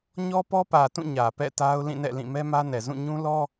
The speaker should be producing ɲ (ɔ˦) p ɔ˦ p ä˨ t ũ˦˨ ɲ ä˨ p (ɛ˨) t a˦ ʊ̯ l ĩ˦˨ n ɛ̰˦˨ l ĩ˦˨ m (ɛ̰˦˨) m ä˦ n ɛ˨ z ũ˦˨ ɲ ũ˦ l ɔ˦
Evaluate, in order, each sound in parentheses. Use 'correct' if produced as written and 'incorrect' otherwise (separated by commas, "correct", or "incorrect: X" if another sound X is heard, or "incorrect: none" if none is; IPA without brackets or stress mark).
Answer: correct, incorrect: ɛ̰˦˨, incorrect: ɛ˦